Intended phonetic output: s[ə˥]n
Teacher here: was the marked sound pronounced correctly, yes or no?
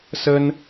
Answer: yes